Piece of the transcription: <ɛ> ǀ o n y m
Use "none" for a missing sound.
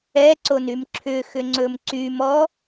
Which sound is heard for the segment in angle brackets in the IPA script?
ɛ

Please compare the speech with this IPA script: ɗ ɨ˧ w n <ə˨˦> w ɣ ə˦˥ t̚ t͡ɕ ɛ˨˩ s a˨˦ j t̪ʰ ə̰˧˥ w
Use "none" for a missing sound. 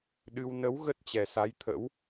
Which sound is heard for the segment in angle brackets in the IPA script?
ə˨˦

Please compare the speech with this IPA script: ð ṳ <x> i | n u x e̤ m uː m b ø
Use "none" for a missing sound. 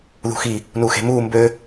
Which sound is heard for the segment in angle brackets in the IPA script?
x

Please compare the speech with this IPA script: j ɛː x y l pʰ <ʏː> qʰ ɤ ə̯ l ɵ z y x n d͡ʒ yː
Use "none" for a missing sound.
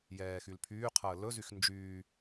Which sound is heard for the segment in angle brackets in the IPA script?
yː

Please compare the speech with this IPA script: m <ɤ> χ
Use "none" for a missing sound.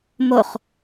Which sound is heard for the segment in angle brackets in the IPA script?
o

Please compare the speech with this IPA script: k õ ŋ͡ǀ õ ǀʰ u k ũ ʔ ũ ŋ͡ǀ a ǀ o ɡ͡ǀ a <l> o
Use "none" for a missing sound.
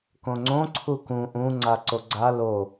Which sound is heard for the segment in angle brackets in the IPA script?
l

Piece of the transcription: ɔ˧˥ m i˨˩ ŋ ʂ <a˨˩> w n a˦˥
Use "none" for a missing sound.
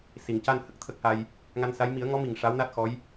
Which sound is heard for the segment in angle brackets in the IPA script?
a˧˥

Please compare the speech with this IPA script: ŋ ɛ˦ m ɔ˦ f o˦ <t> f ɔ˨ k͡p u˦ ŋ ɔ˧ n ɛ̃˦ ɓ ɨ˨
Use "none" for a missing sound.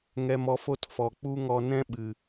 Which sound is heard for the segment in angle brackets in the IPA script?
t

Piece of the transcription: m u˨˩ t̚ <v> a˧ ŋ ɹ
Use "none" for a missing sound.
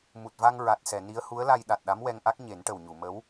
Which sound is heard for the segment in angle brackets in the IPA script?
v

